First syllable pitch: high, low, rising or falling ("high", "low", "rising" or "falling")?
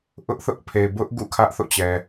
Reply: high